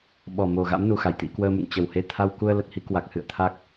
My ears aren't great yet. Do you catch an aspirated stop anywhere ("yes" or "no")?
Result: yes